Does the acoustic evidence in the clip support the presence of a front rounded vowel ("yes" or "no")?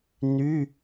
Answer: yes